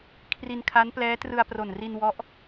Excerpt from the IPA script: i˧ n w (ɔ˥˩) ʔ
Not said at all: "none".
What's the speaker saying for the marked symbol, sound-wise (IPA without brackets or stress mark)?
ɔ˦˥